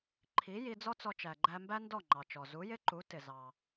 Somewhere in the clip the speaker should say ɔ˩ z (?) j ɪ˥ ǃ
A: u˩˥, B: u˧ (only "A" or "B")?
A